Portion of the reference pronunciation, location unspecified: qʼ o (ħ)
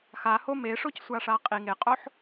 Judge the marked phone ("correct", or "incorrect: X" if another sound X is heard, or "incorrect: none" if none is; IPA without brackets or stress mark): correct